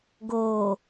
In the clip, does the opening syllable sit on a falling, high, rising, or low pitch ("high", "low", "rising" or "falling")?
low